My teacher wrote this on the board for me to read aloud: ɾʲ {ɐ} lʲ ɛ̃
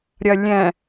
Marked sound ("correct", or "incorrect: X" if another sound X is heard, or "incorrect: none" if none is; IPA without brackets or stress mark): correct